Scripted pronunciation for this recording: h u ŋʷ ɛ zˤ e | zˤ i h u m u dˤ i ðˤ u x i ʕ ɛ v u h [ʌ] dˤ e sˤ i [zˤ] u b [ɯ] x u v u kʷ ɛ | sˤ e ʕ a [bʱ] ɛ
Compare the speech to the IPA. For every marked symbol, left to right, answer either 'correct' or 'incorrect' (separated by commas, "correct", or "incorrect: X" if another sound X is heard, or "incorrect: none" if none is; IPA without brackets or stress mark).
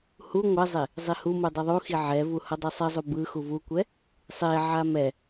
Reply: correct, correct, correct, incorrect: m